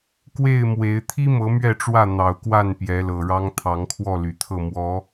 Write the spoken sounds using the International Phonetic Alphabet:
k w e˥˨ ɪ̯ m w e˨˦ ɪ̯ t̪ʰ i˦ m ɤ˨˦ m ɥ ɛ˥˨ ʈ͡ʂ w ä˥˨ n̪ ɑ˨˩ ʊ̯ k w a˥˨ n p j ɛ˨˦ l ɤ˨˩ ɻ ɑ˦ ŋ t̪ʰ ɑ˨˦ ŋ kʰ w ɔ˥˨ l y˨˩ t̪ʰ ɤ˥˨ m w ɔ˨˦

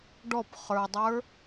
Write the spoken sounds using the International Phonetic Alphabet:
ɖ ɔ p χ ə˞ dˤ ə˞

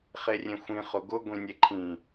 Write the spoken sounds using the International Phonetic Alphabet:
χ e rʲ ẽ xʷ ĩ χ ʊ ɡ ʊ ɡʷ ĩ nʲ e ǃʰ ĩ

